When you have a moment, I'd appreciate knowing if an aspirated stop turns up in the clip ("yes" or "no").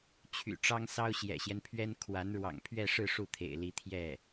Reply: yes